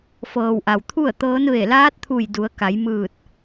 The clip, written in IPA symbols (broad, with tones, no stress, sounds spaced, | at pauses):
f ɤː˩ w ʔ a˩ w t̪ʰ u˥˨ ə̯ t̪ ɤː˧˥ n ʋ e˧˩ l aː˧˥ t̚ t̪ʰ u˧˩ j d u˩˧ ə̯ k a˩˧ j m ɯː˧˩ t̚